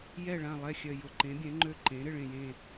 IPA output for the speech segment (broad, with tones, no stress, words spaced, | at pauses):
jɛ˦˨ɭã˦˨lˠɛ˦˨ xʲœ˦˨jʊ˦˨ ǃẽ˨˥bʲɛ̃˨˥ŋ͡ǃø˦˨ ǃẽ˨˥ ɾɪ˦˨ɭẽ˦˨jẽ˦˨